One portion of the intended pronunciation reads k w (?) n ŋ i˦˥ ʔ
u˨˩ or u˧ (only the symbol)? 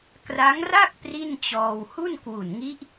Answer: u˨˩